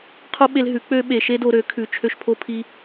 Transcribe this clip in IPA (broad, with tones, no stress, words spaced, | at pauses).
qʰo˦ ɓe˧lɦʉ˨˦ k͡pø˦ɓe˧ ʃe˦do˧ɾø˨˦ kʰʉ˧t͡ʃʰø˦ʃpʰo˦pʰi˦